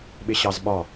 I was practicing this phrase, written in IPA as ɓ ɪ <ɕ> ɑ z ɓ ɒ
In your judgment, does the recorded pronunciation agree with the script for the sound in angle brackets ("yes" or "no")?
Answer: yes